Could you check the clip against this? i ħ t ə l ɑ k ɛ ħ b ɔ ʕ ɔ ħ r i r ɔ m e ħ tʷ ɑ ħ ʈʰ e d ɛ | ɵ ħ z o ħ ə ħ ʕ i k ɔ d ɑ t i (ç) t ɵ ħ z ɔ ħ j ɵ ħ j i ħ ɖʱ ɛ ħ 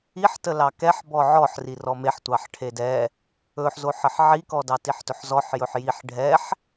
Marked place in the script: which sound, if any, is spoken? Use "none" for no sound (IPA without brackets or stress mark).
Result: ħ